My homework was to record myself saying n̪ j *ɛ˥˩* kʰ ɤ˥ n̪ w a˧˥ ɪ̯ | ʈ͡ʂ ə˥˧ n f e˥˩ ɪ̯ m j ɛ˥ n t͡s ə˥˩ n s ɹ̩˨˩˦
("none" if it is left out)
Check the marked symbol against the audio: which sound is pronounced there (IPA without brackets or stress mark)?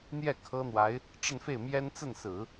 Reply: ɛ˥˩